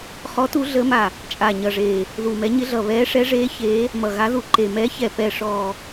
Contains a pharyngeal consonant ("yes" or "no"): no